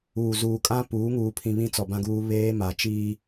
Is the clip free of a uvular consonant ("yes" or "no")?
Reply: yes